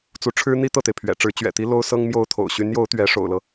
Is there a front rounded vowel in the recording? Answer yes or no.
yes